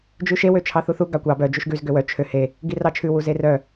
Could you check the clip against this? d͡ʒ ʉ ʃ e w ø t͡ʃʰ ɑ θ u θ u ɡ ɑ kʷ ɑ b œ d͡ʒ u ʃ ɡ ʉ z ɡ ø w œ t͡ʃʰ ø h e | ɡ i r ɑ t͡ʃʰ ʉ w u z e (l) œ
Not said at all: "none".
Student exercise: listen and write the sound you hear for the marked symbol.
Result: r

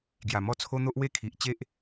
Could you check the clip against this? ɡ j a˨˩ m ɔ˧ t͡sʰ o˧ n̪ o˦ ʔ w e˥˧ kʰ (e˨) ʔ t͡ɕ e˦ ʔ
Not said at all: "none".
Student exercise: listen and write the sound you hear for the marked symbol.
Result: i˨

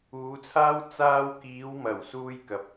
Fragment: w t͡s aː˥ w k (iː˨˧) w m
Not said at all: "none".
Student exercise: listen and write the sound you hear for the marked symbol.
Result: iː˨˧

